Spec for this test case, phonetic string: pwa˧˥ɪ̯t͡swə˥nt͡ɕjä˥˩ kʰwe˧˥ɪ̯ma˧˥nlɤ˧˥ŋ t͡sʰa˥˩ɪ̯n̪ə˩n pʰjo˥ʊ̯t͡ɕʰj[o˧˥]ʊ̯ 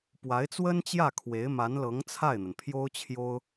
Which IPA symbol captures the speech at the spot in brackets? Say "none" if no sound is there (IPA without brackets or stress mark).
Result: o˥